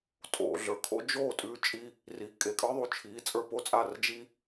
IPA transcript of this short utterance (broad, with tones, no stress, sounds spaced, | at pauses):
tʼ o̰˨ ɮ ə˞˨ kʰ o̰˦ d͡ʒ o˦˨ tʼ ʉ˧ t͡ʃʼ i˧ | r i˨˦ kʼ e˨ kʼ ə˞˦ ðˤ u˨ t͡ʃʰ i˨˦ t͡sʼ ə˞˧ p o˦ t͡sʼ a˦˨ r d͡ʒ i˦